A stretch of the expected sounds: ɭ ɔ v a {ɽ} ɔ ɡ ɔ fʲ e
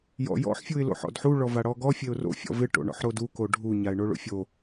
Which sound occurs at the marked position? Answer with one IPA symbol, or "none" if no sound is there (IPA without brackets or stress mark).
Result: ɽ